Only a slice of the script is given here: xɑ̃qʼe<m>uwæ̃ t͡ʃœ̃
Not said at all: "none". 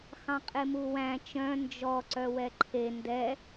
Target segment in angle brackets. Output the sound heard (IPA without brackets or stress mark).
m